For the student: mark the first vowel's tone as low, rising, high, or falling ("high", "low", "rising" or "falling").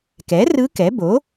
rising